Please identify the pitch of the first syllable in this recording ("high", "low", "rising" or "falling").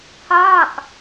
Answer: falling